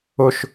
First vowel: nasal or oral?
oral